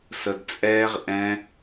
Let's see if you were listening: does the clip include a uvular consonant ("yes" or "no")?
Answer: yes